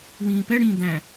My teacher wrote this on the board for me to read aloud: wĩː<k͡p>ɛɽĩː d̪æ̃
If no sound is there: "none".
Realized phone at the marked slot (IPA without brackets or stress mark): p